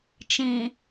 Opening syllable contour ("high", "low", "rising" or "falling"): low